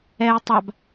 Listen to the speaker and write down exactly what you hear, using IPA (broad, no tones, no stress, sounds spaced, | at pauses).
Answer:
ɛ j tˤ a b